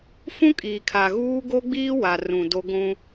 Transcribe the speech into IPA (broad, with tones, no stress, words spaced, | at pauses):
fũ˦kʼiː˨kʰa˨ɣuː˦ ɡo˦ɡ͡biː˦wa˨rũ˨ do˦ɡʷũ˦